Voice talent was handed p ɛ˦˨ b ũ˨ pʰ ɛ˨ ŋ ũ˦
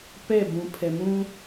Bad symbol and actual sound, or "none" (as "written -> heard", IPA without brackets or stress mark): ŋ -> m